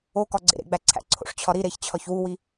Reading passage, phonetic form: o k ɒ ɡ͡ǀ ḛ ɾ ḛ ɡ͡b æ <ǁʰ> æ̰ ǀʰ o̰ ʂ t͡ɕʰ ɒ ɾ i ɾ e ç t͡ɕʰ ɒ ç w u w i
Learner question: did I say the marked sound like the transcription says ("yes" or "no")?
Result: no